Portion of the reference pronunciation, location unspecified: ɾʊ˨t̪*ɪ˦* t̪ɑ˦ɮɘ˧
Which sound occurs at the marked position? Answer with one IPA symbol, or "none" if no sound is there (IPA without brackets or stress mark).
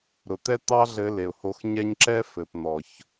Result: ɛ˦